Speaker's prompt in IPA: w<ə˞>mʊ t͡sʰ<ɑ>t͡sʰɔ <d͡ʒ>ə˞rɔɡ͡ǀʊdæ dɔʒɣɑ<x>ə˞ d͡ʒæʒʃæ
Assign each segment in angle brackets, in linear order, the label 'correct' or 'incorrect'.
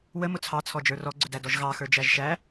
incorrect, correct, correct, correct

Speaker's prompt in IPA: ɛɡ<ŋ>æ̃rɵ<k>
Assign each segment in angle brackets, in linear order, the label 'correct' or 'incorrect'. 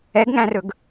correct, incorrect

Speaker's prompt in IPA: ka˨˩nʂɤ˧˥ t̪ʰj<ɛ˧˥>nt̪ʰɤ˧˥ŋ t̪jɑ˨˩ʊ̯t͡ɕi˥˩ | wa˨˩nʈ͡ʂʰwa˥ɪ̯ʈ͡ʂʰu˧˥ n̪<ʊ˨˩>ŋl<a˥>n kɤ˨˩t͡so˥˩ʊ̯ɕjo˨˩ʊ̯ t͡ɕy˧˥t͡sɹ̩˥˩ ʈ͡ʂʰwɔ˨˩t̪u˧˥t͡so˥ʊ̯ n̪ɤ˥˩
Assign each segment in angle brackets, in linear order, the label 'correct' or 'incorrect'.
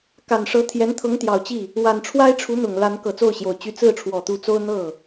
correct, correct, incorrect

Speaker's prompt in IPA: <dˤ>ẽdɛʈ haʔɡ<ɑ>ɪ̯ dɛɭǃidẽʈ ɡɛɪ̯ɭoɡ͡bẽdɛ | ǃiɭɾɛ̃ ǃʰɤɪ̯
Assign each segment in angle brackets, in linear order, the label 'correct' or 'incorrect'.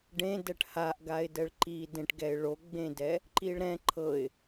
incorrect, incorrect

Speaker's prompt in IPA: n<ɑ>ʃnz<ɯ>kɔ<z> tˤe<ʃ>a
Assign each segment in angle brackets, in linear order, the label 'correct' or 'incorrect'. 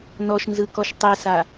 incorrect, correct, incorrect, incorrect

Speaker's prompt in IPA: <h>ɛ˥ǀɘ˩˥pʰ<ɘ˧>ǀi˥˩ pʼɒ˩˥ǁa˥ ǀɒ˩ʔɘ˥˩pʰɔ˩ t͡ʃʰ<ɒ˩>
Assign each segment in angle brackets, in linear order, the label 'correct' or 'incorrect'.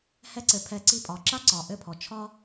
correct, incorrect, incorrect

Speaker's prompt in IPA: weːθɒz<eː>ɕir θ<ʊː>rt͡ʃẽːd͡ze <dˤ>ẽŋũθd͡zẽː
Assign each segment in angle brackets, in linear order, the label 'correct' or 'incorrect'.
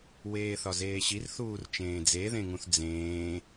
correct, incorrect, incorrect

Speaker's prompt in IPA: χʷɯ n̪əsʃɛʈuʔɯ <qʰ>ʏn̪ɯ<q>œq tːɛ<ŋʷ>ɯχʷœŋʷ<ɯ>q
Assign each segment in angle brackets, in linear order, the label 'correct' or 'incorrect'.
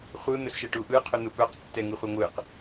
correct, incorrect, incorrect, correct

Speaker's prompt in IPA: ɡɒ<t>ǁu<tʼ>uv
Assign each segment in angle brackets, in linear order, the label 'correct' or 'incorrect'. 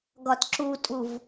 correct, correct

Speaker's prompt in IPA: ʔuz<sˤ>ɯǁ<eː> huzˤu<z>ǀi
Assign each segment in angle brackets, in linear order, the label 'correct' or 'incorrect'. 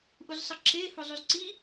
correct, correct, correct

